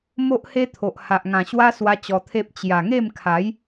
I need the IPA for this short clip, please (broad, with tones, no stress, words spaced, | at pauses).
mo˦ʔhe˦t̪ʰo˨ʔ ha˨ʔŋã˨˩ɕwa˦ swa˦t͡ɕɔ˧t̪ʰe˦p̚ t͡ɕja˨˩ŋe˥˧mkʰa˨˦j